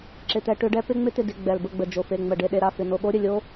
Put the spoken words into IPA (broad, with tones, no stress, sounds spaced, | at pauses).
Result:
ǁ ɪ˦˨ t̪ ɛ˦˥ ʈ ʏ˦˥ ɖ ɛ˦˥ p ɪ˦˥ ŋ͡m ɪ˦˥ t̪ ɪ˦˨ d ɪ˦˨ ɡ͡b ɛ˨˩ l b ə˦˨ ɡ͡b ə˨˩ d͡ʒ o˨˩ f e˨˩ ŋ͡m ə˨˩ ɖ e˦˨ ɗ e˦˨ ɾ a˦˨ f ɪ˨˩ n o˦˨ ɠ o˦˥ ɾʲ ə˨˩ lʲ o˦˥